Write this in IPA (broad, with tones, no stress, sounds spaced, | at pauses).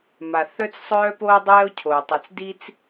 m a˩ θ œ˥ t͡s sˤ œː˥ p oː˥ dˤ ɛː˥ o̯ cʰ oː˩ tˤ i˩ t͡s d i˥ t͡s